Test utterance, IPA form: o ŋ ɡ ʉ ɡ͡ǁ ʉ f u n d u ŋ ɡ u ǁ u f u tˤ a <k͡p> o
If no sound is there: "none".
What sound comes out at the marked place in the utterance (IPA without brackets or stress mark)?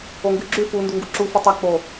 k͡p